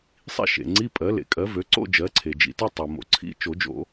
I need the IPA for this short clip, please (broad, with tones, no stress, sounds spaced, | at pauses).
sˤ ḭ˥˧ ʃ ḛ˩ ŋ͡ǀ i˧˥˧ pʼ ɜ˩˥ l ḛ˩ kʼ ɜ˩˥ v ø˩˥ ǀ o̰˥˧ d͡ʒ ɜ˩˥ ǀʰ e˩ d͡ʒ ḭ˩ t i˥˧ tˤ ɜ˩ m o̰˩˥ ǀʰ ḭ˧˥˧ t͡ʃ o˨˩˦ d͡ʒ o̰˨˩˦